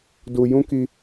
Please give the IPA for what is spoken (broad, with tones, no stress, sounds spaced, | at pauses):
d u˧ j ũ˦ k i˧